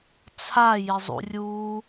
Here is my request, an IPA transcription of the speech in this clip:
t͡sʰa jɪzˤṵrʲu

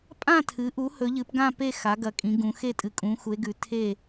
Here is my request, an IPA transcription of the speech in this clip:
pʼã˦˨tʰɨ˩˧ʔu˩˧ hɵ˩˧ʎɨ˩˧pɡã˦˨ pe˦˨xa˩˧ ɡɐ˩˧kʼĩ˩˧ ɡũ˩˧xe˦˨ tʼɨ˩˧kʼũ˩˧xu˩˧e̯ɡʉ˩˧ tʰe˦˨

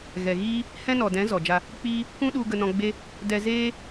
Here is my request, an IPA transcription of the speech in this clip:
ɣɛ˨ɣiː˦ | hɛ̃˦nɔ˨dɛ̃˨˦ zɔ˨d͡ʒa˧ | k͡piː˧ | kũ˦ɗu˧ ɡə˧nɔ̃˧ɡ͡be˦ | dɛ˧zeː˦

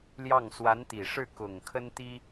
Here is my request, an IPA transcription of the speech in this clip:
ljɑ˥˩ŋ swa˧˥nt̪i˨˩ʂɻ̩˥˩ kʊ˨˩ŋ kʰə˥nt̪i˥

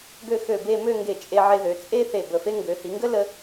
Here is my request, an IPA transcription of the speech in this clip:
ɡø˥˧ xø˧˩be˥˧ mø˥˧ŋɡe˧˩ t͡ʃʼe˧ʕe˧ðø˩˧ t͡sʼe˥θe˧˩ bə˧˩fe˥ ŋɡø˩˧ hi˩˧ŋɡə˥lə˧

